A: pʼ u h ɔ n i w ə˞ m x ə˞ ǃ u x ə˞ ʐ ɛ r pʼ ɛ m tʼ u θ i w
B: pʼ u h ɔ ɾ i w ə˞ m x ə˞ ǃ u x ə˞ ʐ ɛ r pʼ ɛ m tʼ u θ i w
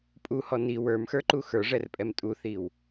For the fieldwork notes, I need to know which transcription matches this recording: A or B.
A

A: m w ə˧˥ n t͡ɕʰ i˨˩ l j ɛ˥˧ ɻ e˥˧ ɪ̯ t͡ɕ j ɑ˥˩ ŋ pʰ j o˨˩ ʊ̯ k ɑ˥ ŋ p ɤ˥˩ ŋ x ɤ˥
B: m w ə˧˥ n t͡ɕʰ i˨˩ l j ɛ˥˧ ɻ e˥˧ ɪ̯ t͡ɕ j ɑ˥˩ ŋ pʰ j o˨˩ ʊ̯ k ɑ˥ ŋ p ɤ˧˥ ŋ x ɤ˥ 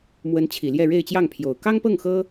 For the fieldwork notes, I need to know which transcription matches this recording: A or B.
A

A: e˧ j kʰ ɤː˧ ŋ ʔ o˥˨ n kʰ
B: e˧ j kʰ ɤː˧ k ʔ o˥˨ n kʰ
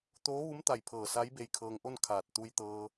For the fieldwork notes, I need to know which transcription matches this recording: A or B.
A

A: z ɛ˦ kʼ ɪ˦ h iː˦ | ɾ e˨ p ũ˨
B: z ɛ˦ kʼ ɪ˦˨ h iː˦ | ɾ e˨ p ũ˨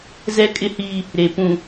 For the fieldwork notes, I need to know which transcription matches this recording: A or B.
A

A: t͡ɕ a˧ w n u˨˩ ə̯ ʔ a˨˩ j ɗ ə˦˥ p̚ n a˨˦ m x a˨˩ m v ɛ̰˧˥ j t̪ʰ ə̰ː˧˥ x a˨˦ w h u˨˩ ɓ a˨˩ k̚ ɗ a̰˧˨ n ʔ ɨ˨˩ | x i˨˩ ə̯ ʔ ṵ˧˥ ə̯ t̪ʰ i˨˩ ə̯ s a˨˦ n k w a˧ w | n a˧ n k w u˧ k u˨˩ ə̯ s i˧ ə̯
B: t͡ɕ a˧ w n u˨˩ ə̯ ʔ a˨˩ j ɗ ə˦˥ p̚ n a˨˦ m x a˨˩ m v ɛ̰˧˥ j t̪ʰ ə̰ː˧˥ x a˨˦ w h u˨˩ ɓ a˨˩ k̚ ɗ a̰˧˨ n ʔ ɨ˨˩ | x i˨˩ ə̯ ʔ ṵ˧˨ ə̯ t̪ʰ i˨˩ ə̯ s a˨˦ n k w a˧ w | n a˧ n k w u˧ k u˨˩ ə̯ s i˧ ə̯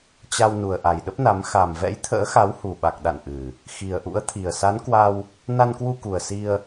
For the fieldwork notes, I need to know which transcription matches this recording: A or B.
A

